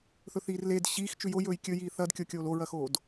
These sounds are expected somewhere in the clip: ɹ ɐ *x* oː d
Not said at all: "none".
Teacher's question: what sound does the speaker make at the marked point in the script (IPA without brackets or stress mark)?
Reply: x